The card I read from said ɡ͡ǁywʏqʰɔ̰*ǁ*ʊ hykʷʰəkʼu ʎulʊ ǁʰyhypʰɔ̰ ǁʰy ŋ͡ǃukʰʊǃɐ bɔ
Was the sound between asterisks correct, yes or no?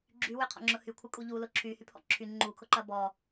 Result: no